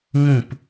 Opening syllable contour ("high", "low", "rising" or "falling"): falling